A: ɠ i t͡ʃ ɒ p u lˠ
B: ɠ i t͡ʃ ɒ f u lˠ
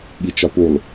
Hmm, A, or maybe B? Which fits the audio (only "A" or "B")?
A